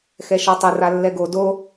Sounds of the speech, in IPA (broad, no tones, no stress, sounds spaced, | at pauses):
x ɛ ʃ ɔ tˤ ɘ r a lː ɛ ɡ o d o